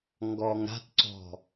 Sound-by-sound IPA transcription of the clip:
ŋ ɡ ɔ ŋ ɾ a̤ t ǀ ɔ̤

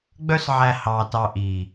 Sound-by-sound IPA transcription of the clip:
ɡ͡b œ˦ s ʕ æ˧ h ɑː˧ t ɑ˧ ʔ iː˨

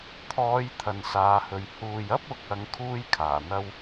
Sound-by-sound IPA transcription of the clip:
t̪ʰ ɔː˨˧ j t̪ʰ ɐ˨ n s aː˨˧ h ɵ˨ ɥ h uː˨ j ɐ˥ p̚ ʊ˨˥ k̚ ɐ˨˧ ŋ kʰ uː˥ j kʰ aː˨˩ n̪ ɐ˥ w

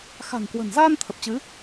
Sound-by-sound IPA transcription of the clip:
x a̤˨˩ ŋ k w ə̤˨˩ n z aː˧ n t̪ʰ ə˨˩ p̚ t͡ɕ ɨ˨˦

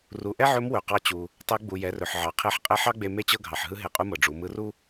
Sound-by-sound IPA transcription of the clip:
r u˩˧ ʔ ɛ˥ ʕ ɵ˧˥ m w ɵ˩ q ɑ˧ t͡ɕ u˩ | tˤ ɛ˧˥ ɡ͡b u˩ j ɛ˩˧ r ɵ˩ ħ ʕ ɑ˩ qʰ e˧˥ ħ qʼ ɛ˧˥ ħ ɑ˥ ɡ͡b e˧ m e˥ t͡ɕ ɤ˥ ɡʱ ɑ˩ ħ ɦ ɯ˥ ɦ e˧ qʼ u˥ m ɤ˩ ɖ͡ʐ u˩˧ m ɯ˧˥ r u˥

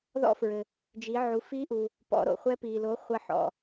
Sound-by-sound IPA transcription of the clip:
ð ɔ̰˧ f ɹ ɘ˩ | d͡ʒ i˩˧ ʕ u˩˧ f i˧˥ ʔ u˩ | p ɔ̰˩˧ ɾ o̰˩ χʷ ɛ˧ p i˩ l o˩˧ χʷ ɐ˧ ħ ɔ̰˩

